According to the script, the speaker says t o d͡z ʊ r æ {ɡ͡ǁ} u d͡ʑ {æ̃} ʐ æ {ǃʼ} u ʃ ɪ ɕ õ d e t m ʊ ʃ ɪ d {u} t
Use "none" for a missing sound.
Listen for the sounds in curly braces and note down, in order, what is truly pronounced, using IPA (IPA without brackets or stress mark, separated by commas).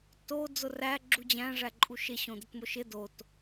ɡ͡ǁ, æ̃, ǃʼ, o